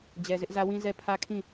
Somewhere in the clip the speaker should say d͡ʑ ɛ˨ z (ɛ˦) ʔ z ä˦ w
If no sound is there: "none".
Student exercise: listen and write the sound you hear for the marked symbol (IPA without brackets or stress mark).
ɪ˦